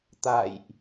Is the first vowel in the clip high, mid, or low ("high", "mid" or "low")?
low